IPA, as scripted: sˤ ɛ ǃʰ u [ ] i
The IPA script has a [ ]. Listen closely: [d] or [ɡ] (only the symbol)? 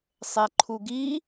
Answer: ɡ